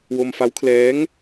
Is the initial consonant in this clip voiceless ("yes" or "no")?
no